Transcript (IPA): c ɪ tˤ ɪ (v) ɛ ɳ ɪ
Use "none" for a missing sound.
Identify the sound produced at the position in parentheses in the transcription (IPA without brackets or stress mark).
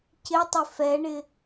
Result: f